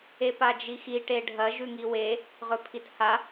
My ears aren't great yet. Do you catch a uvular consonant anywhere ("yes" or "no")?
yes